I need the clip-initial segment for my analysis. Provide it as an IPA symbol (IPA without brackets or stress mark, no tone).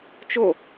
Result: t͡ʃ